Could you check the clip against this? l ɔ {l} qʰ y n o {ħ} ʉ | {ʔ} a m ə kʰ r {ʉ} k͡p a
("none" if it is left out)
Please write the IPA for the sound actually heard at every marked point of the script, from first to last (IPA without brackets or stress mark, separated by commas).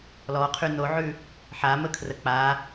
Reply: none, ʕ, ħ, ə